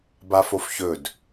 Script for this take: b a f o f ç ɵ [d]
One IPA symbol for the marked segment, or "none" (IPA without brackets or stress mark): d